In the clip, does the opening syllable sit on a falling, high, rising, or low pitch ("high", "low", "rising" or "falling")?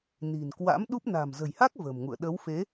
low